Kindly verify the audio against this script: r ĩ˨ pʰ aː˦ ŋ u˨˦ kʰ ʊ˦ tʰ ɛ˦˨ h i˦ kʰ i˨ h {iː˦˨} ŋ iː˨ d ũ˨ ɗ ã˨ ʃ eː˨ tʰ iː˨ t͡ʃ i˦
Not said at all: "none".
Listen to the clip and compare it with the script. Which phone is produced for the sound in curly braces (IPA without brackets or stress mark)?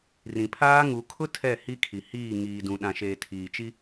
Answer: iː˦˨